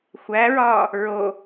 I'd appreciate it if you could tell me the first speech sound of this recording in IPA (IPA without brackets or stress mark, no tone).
xʷ